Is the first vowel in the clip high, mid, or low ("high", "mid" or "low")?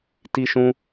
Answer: high